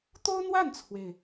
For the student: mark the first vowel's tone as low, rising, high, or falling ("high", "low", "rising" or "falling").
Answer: high